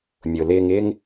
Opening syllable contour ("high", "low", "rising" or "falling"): low